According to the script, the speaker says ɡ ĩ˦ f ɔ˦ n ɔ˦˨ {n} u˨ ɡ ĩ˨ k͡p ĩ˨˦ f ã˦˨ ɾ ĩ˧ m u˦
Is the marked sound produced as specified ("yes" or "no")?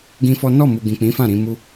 no